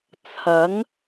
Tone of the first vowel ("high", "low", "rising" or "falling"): rising